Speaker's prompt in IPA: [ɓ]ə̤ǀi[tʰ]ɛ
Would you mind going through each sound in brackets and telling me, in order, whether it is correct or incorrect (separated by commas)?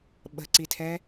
correct, correct